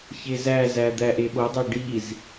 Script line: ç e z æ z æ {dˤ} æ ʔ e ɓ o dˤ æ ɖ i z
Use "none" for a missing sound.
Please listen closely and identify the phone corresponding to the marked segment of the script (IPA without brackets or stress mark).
d̪